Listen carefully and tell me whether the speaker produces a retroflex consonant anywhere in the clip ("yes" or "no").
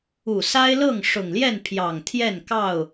yes